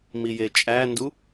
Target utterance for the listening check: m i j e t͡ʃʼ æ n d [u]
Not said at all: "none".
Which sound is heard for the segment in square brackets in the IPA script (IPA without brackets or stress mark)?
u